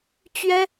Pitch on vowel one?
high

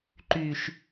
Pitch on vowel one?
low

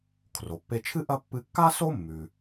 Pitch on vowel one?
low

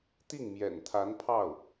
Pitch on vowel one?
falling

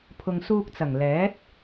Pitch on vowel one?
low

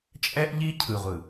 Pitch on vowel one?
high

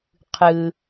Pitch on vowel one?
low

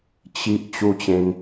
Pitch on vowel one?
high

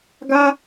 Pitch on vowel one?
high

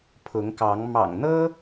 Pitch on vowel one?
rising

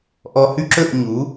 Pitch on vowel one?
low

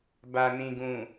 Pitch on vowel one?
low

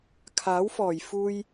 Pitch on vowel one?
rising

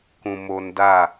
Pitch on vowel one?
low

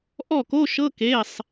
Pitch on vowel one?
falling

